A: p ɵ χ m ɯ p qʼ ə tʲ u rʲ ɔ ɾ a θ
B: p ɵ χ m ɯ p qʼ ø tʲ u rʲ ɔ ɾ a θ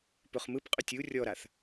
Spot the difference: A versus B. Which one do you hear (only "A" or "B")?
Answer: B